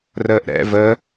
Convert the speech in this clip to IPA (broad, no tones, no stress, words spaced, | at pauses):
rəːʔɾɛ̰ vəː